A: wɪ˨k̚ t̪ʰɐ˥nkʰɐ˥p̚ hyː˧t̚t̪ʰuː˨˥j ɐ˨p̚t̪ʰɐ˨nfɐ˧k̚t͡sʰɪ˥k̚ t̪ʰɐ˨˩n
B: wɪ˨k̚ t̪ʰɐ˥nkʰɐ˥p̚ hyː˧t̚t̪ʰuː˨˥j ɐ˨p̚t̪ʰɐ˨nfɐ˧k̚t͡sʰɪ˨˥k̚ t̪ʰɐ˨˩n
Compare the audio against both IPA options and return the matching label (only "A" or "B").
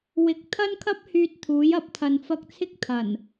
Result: A